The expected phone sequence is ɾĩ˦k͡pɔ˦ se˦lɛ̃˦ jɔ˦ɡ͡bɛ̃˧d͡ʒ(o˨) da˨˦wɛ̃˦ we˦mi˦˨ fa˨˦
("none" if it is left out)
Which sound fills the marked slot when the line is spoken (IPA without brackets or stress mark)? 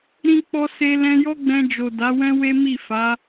o˨